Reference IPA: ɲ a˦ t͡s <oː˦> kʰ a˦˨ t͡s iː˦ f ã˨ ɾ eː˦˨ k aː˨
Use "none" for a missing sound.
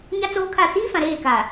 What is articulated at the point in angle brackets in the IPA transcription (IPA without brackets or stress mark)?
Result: oː˦